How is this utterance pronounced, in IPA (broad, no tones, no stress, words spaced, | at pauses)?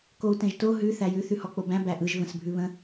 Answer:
kou̯tɛ̃ʒto ɦʉ θæjʉ θʉhɔk͡pobæ̃ bæʔɯʒ və̃sbʱʉβə̃